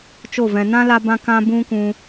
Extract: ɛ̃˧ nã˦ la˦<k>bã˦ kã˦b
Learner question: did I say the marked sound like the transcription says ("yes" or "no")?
no